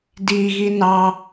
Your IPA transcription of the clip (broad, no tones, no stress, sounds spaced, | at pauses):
d i ɣ i n ɑ